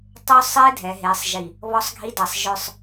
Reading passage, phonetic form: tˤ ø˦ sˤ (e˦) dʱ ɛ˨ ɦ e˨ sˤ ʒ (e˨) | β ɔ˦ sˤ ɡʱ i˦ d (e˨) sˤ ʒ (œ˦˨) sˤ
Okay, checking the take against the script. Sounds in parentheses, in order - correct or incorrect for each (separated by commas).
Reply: correct, incorrect, incorrect, incorrect